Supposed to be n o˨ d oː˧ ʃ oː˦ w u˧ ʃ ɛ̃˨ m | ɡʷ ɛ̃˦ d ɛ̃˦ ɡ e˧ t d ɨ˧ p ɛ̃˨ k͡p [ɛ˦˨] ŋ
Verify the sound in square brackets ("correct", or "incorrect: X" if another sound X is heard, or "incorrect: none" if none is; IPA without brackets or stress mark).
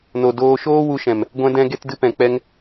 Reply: incorrect: ɛ˦